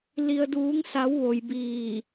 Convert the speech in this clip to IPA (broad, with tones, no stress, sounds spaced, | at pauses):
l i˩ ə̯ d uː˩˧ ŋ s a˩˧ w ʋ o˩ j b iː˧˩